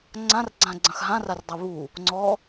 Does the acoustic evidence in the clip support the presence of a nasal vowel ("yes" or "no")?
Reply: yes